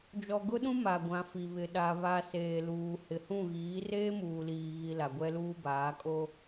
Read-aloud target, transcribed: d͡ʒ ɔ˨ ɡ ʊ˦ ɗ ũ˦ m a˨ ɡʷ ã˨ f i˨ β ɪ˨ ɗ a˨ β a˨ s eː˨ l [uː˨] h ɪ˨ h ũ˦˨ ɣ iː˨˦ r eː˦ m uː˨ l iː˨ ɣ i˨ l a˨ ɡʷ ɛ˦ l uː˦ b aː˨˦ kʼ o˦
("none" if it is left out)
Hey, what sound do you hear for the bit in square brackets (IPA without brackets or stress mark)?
uː˨